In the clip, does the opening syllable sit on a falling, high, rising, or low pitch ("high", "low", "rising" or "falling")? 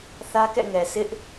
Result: high